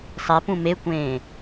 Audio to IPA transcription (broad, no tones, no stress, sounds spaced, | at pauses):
sˤ e p ũ m e kʷ ẽː